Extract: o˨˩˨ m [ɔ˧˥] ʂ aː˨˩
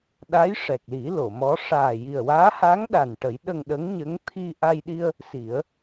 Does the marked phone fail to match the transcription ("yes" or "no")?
no